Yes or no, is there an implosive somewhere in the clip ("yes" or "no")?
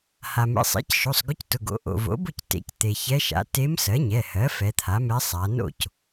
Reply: no